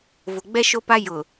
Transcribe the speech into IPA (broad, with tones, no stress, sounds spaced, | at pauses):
v ʊ˨ ɡ͡b ɛ˦ ʃ o˦ p a˦ j ʊ˨